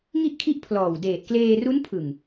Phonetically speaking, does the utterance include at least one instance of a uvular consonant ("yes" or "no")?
no